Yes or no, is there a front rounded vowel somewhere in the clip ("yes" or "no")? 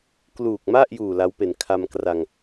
no